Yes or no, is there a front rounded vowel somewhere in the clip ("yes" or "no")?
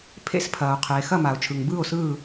no